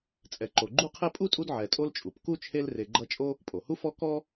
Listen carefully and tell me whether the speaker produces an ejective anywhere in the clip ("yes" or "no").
yes